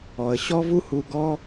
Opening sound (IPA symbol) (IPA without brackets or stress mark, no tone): ɔ